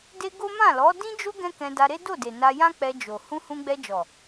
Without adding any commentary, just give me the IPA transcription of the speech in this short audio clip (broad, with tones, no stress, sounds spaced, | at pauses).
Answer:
d e˦ ɡ o˦ m ã˦˨ l ɔ˨˦ d ĩ˦ d͡ʒ o˦ ɡ ɛ̃˦ k ɛ̃˧ d a˧ ɾ e˦ d o˦˨ d e˨ n a˧ j ã˦ k͡p ɛ˧ d͡ʒ o˨ h ũ˧ h ũ˧ ɡ͡b ɛ˧ d͡ʒ ɔ˨